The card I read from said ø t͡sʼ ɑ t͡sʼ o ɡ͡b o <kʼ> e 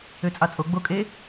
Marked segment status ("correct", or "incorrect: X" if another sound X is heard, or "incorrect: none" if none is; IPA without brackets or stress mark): correct